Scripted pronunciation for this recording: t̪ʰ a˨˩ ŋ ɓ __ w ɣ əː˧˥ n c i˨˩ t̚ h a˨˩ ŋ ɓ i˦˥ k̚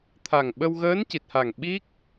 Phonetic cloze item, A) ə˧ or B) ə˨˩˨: A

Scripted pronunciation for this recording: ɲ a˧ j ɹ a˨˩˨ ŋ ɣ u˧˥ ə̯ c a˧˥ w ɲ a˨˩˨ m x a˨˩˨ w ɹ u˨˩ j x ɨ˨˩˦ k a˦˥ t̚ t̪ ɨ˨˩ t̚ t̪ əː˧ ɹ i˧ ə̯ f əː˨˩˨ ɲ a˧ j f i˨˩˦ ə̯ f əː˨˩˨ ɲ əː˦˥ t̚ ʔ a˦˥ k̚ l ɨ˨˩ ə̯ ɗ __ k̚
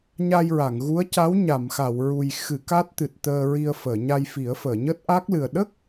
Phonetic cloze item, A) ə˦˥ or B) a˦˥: A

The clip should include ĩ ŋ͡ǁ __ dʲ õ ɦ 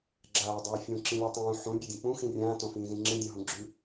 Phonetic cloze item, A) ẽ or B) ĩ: A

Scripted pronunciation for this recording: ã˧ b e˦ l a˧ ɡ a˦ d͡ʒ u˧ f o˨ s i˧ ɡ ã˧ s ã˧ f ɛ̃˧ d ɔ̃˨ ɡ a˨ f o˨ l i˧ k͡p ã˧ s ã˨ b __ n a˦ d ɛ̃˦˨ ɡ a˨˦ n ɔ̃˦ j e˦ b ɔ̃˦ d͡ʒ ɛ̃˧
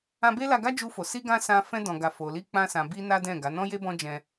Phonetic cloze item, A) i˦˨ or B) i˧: B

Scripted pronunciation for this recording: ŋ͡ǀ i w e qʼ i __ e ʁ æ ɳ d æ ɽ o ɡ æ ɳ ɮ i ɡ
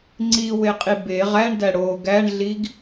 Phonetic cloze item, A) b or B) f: A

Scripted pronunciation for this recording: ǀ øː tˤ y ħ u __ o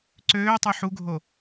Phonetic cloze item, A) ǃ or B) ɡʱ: B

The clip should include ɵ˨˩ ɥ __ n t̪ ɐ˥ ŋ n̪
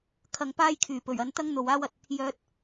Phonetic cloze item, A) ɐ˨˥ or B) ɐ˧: B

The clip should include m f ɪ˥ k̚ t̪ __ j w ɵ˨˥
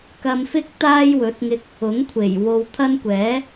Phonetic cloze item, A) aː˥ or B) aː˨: A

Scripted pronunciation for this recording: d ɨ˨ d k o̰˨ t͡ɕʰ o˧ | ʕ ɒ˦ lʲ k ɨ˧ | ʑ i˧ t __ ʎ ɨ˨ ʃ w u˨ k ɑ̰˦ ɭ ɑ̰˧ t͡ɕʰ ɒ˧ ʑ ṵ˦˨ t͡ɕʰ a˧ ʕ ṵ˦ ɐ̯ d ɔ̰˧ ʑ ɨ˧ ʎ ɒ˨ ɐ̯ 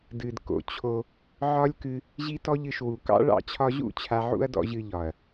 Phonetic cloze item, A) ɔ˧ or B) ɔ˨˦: A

